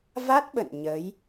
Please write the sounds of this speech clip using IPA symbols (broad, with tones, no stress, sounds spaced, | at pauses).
v a˦˥ t̚ ɓ ə̰˧˨ n ɲ ə˨˦ j